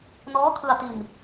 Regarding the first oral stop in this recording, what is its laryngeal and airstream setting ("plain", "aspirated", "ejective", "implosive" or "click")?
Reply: aspirated